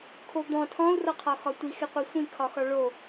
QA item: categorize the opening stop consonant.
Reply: aspirated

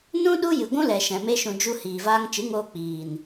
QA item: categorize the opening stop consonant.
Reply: implosive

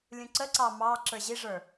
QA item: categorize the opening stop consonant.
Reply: click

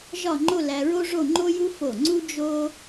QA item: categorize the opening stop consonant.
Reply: click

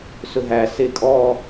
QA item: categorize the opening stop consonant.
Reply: ejective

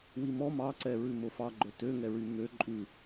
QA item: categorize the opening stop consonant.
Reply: click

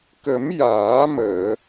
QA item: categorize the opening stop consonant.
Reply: plain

